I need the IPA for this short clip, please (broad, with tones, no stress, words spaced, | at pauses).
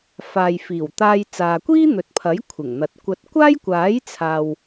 faː˨jfiː˨˩wt̪aː˧j t͡saː˨kʷiː˥n̪ɵ˨t̚pʰɐ˨˥j kʷʰɪ˨˩ŋn̪ɐ˨t̚kʷɐ˧t̚ kʷaː˥jkʷaː˨˥jt͡sʰaː˨w